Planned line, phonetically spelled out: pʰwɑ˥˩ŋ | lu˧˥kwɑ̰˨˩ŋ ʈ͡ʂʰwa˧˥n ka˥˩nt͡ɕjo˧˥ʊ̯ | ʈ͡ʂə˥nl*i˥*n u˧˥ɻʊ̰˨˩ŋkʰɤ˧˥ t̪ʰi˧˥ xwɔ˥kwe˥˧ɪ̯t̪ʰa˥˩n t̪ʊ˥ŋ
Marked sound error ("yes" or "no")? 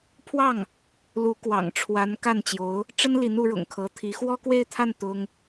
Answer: yes